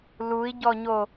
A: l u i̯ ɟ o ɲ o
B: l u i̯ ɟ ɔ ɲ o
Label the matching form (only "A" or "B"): B